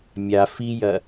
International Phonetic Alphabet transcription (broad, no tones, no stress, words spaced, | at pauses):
mʲa fijɐ